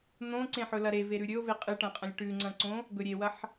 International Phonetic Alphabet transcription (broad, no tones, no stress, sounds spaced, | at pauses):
n̪ õ ǀ ẽ ħ ɵ l ɐ ɾ e v e ɾ ʉ ɾʲ ɵ o̯ v e qʼ ɨ ʈ ɐ̃ qʼ ɐ̃ lʲ ʈ ʉ ŋ͡ǀ ɐ̃ ǀ õ | ɡ ɵ ɾʲ e w ɐ ħ